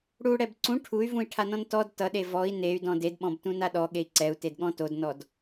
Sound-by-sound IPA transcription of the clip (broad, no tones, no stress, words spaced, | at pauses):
ɽuɽɛb ǀũ ʈʰuy̯vũi̯ʈʰanɔ̃n tɔd tʌɗe vɔi̯ ney̯dɔ̃ dedɓɔ̃btũna ɗɔɠei̯ ǀɛu̯tedɠɔ̃ todnɔd